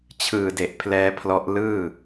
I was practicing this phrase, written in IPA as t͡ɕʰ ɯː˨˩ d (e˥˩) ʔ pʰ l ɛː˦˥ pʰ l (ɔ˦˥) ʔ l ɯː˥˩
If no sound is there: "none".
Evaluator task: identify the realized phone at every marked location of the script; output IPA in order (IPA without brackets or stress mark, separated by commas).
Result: e˨˩, ɔ˦˥